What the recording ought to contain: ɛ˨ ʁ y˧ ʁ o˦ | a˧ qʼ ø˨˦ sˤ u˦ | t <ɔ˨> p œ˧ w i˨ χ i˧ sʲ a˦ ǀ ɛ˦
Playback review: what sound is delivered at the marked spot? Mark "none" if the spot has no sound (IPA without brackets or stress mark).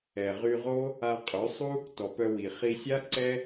ɔ˨